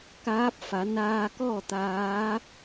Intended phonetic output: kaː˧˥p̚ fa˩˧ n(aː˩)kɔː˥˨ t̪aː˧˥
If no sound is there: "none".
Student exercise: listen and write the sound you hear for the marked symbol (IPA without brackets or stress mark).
aː˧